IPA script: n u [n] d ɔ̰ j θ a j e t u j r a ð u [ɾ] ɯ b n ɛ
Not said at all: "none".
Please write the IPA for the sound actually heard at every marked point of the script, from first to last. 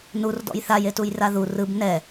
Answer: r, r

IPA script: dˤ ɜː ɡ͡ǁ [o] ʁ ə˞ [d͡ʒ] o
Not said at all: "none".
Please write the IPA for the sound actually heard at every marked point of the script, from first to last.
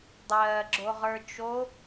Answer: o, t͡ʃ

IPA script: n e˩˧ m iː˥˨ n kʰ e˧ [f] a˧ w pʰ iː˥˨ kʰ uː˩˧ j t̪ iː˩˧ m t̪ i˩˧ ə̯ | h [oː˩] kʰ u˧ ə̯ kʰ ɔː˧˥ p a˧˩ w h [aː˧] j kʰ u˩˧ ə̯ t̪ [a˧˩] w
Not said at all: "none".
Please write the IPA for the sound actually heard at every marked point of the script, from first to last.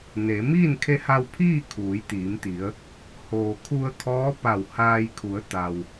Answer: h, oː˩, aː˧, a˩

